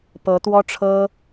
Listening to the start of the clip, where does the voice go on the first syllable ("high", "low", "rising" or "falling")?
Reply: rising